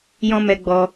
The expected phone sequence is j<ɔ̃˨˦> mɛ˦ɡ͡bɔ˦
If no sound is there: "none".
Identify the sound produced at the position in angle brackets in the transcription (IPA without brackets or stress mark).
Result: ɔ̃˦